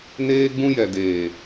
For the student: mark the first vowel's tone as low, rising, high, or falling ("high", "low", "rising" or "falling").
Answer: high